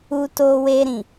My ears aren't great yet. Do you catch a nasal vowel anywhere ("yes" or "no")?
yes